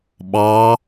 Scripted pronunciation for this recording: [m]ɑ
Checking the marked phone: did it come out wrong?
yes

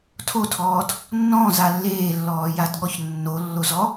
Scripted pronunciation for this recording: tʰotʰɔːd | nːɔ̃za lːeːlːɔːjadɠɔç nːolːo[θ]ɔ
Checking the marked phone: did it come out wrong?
yes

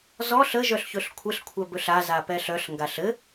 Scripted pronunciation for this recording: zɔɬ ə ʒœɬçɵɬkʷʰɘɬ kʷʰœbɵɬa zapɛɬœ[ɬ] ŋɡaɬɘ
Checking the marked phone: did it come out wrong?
no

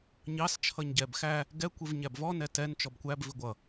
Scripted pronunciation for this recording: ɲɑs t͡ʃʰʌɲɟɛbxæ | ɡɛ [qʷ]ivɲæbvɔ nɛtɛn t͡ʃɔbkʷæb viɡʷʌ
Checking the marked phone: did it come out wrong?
yes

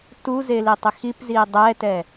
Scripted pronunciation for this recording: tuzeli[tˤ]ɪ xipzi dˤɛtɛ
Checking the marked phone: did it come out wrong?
no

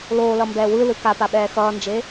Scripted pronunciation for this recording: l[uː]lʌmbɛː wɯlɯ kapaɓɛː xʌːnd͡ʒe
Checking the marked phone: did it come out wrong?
yes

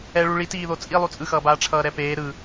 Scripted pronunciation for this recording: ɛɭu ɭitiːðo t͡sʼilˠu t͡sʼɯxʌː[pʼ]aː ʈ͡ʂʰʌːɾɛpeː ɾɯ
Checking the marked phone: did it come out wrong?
yes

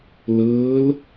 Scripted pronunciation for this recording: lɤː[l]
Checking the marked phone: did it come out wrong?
no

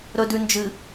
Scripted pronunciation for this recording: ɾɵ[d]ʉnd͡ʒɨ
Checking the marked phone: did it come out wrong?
no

